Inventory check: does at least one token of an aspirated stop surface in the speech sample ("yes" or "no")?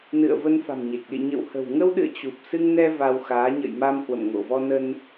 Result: no